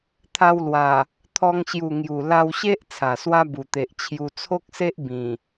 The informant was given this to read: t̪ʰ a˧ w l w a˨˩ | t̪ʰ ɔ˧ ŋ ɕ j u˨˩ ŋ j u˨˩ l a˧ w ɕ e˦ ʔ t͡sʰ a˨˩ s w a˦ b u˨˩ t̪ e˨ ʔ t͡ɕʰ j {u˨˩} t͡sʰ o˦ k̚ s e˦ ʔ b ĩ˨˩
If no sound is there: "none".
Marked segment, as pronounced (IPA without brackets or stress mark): u˧